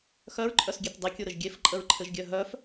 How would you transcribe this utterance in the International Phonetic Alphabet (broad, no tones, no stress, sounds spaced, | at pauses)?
x œ ɹ ǃʼ œ s ɡʲ e t dˤ e kʲ u ɾ ɘ ʒ ɡʲ e f ǃʼ ə ɹ ǃʰ ɘ ʒ ɡʲ œ ɦ œ f